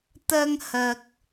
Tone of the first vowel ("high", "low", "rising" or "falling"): high